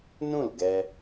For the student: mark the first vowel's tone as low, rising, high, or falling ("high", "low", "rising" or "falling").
falling